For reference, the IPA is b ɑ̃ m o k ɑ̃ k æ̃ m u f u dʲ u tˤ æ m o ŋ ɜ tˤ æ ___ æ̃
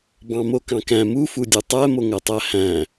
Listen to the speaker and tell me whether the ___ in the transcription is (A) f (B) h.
B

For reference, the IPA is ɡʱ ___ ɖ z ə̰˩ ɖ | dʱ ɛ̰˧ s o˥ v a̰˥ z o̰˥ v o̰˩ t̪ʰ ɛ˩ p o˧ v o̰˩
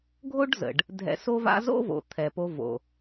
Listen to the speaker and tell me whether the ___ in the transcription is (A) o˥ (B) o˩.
A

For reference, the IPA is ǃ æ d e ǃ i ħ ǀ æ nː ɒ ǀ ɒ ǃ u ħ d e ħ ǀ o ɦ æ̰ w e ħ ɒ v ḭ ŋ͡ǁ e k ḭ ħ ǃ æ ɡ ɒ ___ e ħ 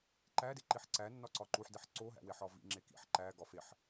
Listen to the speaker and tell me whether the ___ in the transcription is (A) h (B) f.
B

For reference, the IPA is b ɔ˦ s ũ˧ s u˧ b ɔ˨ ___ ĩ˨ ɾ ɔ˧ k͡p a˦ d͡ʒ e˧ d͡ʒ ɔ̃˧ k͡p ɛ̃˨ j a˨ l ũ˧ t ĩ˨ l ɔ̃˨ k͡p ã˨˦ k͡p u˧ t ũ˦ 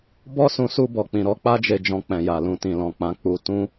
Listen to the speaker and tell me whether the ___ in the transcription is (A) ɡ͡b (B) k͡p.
B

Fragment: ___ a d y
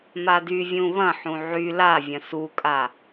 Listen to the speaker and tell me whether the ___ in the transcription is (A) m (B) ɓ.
A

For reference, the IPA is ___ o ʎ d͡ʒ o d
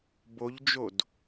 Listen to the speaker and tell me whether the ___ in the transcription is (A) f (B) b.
B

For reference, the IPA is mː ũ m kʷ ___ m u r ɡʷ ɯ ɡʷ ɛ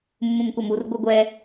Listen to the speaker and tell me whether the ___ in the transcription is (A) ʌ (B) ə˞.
A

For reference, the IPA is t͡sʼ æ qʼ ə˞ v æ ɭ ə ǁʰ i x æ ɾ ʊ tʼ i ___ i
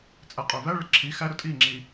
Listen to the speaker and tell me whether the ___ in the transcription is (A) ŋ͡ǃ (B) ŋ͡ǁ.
B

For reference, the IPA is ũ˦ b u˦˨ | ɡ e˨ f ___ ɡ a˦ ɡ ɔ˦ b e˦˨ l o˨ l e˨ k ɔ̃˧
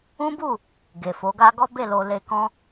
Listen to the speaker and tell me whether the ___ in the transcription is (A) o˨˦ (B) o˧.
A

